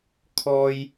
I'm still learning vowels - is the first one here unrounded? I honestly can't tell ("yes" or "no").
no